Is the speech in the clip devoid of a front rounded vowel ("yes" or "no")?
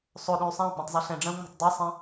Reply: no